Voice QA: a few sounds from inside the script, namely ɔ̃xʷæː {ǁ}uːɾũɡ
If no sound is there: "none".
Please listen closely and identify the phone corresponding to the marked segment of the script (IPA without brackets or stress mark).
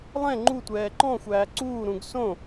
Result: ǀ